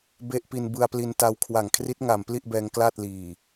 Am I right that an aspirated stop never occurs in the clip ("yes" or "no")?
no